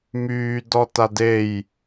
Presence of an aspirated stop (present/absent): absent